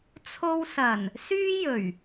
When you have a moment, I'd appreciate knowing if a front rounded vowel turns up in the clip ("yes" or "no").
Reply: yes